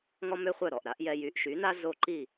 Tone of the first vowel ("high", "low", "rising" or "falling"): high